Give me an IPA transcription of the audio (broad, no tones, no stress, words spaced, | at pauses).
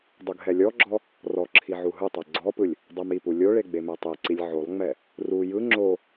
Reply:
dˤuɡɦɛlʲɔɡ͡ǁɔ | rɔ ǁʰiʕuɦɯtˤɛ ɡ͡ǀɔpɯlʲ | dˤɛmipu lʲoɭe ɡ͡bemɛtˤeǀilʲ ʕolˠŋ͡mɛ | ru jɯ ŋ͡ǁo